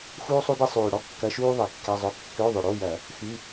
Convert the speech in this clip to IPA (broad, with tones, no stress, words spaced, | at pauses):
xuː˥sˤu˥de˥ sˤyː˨˩ ɽɔ˥kːɐ˧˥˧ʃuː˥ ðˤe˧˩˧kːɛ˧˥˧zˤʊ˧˥˧ kːø˧˥˧ðˤʊ˨˩ɽo˧˥˧jɐ˧˩˧ | xy˧˥˧